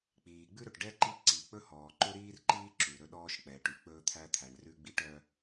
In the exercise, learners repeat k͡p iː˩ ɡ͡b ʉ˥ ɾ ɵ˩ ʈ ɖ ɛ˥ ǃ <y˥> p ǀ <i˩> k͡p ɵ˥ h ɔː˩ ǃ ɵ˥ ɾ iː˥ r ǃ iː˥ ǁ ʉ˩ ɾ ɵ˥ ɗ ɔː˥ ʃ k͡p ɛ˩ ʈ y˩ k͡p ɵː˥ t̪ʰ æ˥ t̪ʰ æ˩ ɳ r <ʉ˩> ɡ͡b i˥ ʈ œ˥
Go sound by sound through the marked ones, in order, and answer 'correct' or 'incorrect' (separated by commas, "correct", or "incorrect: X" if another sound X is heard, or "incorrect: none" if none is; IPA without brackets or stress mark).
incorrect: i˥, correct, incorrect: ʉ˥